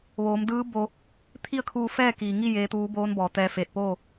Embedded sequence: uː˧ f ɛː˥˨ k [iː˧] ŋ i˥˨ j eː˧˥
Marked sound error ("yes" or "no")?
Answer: yes